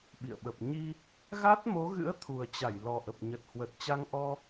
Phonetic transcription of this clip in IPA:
ɓ ḭ˧˨ ə̯ ɓ ə˨˩ p̚ ɲ i˧ | ɣ a˦˥ t̚ m o˨˦ ɣ ɨ̰˧˥ ə̯ t̪ʰ u˨˩ ə̯ t͡ɕ a˧˩ j l ɔ˨˩ ʔ ə˨˩ p̚ ɲ ə˨˩ t̚ h w ə˨˩ t̚ t͡ɕ a˧ ŋ ʔ ɔ˧

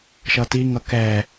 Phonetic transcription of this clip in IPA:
ʃ ʌ t i ŋ ʌ k ɛ

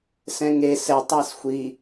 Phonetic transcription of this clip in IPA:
s ɛ̃ ŋ e s ɛ tˤ a s xʷ i

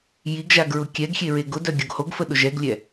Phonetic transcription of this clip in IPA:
j i ɡ ʒ a ɡ ɹ ʊ kʲ ɛ ɡ xʲ e ɹ e ɡ ʊ d œ ɡʲ o ɡ h o ɡ f ə ɗ ʊ ʒ ɛ ɡ lʲ ɛ

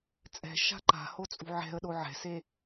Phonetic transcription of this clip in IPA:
t͡sʼ ɛ̤ ʃ a̤ ǃ a̤ h o t͡sʼ ṳ ʕ ɛ̤ ə̯ ɗ o ʕ ɛ̤ s e

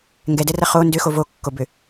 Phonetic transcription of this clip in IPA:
ŋ ɡ ɛ d ɛ r ɐ χ o n d ʏ x o v o kː o b ʏ

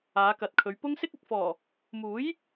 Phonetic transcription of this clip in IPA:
aː˨˧ k ɐ˨ t̚ kʰ ɵ˨˧ ɥ p ʊ˥ ŋ s ɪ˥ k̚ ɐ˨ k̚ f ɔː˨˩ | m uː˨˥ j

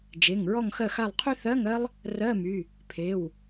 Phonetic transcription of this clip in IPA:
d͡ʒ e˩˧˩ ŋ ɹ ɔ˦˨ ŋ x ɜ˦˨ x a˦˨ lˠ qʰ y˥ θ ɜ˧˥˧ ŋ ɜ˥ lˠ | r ɜ˧˥˧ m y˩˧˩ | pʰ e˩˧˩ w

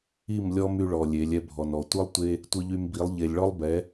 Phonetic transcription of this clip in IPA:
i˦˨ m lʲ ɔ˦ m y˧ ɭ ɔ˨ lʲ e˨˦ lʲ ɛ˧ bʱ ɔ˨ n ɔ˨ tʷ ɯ˦ lˠ tʷ e˦ | tʷ ɯ˧ ʎ y˧ m b i˨˦ lˠ ʎ e˨ lʲ ɭ ɔ˦ lˠ b ɛ˨˦

